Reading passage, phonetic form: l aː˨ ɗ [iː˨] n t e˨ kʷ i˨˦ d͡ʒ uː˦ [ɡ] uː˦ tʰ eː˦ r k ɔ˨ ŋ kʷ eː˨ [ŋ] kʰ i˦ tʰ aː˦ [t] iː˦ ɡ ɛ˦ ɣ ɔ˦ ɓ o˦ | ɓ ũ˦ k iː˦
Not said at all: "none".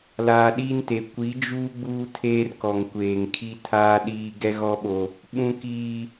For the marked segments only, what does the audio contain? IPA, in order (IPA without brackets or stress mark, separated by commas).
iː˦, ɡ͡b, ŋ, ɗ